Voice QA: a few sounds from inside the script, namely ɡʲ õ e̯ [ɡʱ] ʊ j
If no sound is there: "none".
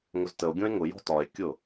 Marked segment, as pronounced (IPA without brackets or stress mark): ŋ